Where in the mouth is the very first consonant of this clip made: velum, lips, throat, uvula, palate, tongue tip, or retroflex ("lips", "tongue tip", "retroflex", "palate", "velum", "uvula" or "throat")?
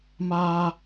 lips